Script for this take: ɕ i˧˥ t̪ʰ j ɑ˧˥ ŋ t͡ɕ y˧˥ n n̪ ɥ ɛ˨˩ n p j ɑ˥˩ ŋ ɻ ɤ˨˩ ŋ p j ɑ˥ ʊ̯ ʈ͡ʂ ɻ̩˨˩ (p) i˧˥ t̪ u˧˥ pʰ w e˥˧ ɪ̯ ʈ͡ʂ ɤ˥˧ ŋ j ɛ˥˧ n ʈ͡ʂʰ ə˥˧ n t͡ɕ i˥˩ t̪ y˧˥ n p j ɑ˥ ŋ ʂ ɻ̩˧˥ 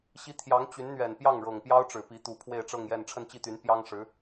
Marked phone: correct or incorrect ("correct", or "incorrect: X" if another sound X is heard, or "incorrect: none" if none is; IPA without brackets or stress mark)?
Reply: correct